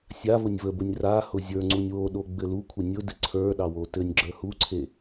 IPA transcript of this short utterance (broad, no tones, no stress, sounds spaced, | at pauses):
sʲ a v ʊ nʲ v ə b ʊ nʲ r a h ʊ zʲ ə˞ ŋ͡ǀ u nʲ w o ɗ o ɡ͡b ɘ l u kʷʰ ɘ nʲ ʊ d ɘ ǀʰ ə˞ ɗ ɑ w o t ɘ nʲ ɡ͡ǁ ə˞ h u ǀʰ e